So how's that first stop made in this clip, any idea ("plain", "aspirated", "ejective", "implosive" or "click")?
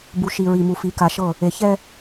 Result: plain